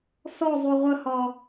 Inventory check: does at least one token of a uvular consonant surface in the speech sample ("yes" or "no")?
yes